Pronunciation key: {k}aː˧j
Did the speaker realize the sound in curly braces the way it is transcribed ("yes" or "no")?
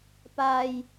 no